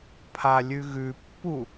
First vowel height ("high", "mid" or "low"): low